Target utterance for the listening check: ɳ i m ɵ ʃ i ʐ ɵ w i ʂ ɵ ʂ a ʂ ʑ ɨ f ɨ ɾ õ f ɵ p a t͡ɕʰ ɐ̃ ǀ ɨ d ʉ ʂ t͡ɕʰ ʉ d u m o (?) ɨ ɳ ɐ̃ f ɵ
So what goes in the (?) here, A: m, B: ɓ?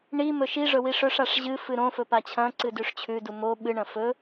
B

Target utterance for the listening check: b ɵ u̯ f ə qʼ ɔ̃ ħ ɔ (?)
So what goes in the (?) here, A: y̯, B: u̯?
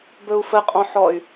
A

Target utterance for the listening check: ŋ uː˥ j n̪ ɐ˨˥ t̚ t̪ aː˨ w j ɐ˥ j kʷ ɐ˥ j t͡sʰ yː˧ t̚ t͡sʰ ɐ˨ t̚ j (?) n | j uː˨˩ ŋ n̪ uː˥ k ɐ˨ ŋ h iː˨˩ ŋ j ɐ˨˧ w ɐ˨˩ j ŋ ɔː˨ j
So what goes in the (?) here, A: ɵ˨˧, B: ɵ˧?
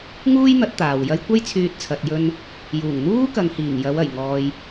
B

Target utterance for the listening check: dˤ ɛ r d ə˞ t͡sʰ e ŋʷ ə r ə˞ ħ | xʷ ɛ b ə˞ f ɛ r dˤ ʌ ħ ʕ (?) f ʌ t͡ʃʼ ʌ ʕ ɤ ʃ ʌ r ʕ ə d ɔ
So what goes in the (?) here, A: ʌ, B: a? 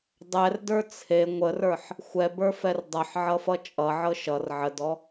A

